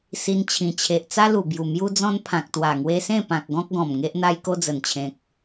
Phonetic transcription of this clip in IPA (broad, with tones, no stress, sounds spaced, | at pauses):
s i˧ n t͡ɕʰ ĩ˨˩ t͡ɕʰ e˨ ʔ t͡s a˦ l u˨˩ b j u˨˩ m j u˦ d͡z ɔ̃˦ n pʰ ã˨ k̚ t̪ w a˨˩ ŋ w e˧ s ẽ˥˧ p ã˨ k̚ ɡ ɔ̃˦ k̚ ɡ ɔ̃˨˩ m ŋ e˦ ʔ n̪ a˦ j k o˦ d͡z ə˨˩ n t͡ɕʰ ẽ˨ k̚